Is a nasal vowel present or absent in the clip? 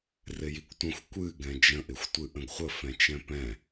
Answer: present